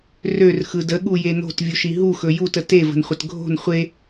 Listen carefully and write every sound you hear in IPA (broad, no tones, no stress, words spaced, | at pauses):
rørxɯ dəɠuje no̤tvʲuʃi ɦuxɵ jutə tevə̤nχʷət ɡʱo̤n χʷe